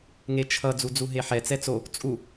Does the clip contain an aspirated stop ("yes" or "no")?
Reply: yes